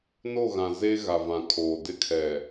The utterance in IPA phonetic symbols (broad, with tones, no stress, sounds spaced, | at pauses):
n o˦˨ ɣ ã˨ z e˦ ɣ a˨ v ã˨ kʰ oː˨ d ɪ˦ kʰ ɛ˨